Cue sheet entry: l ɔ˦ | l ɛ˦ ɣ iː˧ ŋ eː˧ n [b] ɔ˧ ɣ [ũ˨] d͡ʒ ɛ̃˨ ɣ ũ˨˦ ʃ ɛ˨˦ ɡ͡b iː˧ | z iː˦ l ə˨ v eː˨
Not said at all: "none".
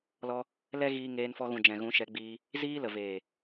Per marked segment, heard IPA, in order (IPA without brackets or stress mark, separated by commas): f, ũ˨